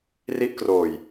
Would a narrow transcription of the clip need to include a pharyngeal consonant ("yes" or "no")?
no